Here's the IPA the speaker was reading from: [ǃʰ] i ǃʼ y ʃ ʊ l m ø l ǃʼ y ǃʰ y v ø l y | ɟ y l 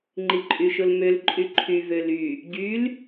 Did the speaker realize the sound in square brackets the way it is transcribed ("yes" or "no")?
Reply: no